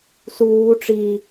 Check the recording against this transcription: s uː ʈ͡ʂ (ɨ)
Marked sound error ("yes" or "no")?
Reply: yes